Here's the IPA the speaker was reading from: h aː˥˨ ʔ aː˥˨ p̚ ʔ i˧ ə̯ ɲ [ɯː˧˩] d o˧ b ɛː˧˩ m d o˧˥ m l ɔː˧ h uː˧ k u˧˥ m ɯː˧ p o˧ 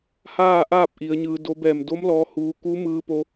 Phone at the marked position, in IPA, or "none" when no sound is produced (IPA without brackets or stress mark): ɯː˧